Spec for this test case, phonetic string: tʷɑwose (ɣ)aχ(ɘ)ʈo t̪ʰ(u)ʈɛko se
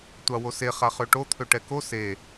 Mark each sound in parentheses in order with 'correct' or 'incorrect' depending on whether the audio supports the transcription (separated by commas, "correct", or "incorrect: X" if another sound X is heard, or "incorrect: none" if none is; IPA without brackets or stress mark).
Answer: incorrect: χ, incorrect: ø, incorrect: ø